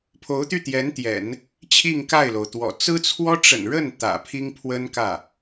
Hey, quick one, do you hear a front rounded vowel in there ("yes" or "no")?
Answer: yes